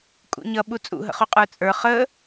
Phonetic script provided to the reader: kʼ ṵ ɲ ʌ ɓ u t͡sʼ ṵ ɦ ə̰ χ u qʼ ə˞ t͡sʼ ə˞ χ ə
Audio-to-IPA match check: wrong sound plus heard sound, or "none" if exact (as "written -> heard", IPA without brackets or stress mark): none